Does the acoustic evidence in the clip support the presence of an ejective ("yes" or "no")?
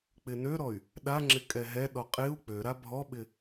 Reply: yes